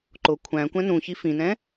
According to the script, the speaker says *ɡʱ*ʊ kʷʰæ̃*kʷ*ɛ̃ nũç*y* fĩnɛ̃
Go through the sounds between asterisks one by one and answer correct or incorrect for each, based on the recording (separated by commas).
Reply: incorrect, correct, incorrect